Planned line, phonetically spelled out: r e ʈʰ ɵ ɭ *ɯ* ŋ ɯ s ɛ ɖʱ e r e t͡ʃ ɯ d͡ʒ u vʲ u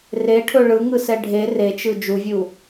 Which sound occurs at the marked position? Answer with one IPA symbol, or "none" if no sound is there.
ɯ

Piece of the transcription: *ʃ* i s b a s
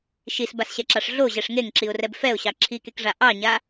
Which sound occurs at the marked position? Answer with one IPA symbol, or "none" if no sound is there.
ʃ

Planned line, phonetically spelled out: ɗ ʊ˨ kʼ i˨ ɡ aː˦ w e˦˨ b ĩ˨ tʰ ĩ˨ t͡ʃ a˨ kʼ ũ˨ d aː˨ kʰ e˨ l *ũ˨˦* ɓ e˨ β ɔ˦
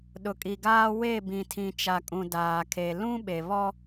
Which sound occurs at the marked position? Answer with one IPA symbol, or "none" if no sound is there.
ũ˦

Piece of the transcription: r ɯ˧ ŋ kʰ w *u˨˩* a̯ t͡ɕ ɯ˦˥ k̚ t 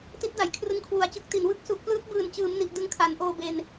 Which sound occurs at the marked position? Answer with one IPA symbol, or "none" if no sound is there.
u˨˩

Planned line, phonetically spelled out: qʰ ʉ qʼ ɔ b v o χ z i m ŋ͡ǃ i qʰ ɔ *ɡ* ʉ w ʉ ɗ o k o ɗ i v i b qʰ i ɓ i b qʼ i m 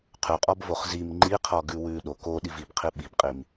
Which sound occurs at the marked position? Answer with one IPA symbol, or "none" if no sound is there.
ɡ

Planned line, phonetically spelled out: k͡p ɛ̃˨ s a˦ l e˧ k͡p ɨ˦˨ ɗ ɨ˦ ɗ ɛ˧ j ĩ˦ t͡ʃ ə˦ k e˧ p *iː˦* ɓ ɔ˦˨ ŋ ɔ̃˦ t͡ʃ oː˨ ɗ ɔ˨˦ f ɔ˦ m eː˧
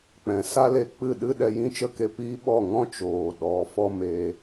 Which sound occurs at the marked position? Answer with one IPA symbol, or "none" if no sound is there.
iː˦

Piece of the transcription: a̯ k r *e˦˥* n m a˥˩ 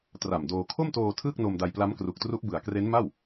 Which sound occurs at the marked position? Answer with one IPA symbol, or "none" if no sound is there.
e˦˥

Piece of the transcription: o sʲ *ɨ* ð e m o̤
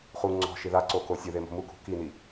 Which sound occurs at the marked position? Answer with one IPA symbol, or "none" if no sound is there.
ɨ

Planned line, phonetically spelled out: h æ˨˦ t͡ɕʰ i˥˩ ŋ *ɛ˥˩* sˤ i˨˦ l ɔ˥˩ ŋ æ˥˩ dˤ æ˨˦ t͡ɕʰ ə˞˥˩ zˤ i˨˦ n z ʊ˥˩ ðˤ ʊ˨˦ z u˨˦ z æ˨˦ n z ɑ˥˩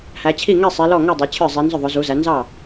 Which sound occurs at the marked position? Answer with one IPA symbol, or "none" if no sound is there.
ɛ˥˩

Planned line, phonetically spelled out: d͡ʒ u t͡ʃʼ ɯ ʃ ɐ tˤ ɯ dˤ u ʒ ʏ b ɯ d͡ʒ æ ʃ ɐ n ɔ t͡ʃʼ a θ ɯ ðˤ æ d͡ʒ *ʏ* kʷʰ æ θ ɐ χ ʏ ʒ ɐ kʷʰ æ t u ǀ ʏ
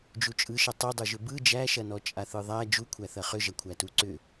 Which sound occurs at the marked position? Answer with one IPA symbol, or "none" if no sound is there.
u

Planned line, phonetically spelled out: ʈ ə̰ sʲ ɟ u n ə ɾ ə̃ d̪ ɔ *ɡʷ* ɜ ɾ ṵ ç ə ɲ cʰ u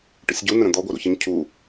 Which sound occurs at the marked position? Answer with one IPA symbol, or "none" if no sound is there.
ɡʷ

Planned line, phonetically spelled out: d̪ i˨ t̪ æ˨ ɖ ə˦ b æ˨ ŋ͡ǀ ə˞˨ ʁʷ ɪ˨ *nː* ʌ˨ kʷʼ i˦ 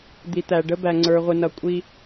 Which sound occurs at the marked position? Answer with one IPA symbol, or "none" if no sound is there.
n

